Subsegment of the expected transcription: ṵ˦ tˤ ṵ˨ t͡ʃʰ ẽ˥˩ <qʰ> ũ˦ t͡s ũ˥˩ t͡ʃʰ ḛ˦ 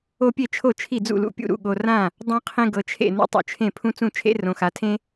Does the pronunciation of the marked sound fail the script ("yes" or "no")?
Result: yes